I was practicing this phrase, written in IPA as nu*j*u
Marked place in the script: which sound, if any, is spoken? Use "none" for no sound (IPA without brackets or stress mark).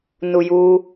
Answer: j